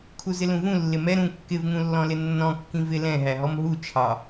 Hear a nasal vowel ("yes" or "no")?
yes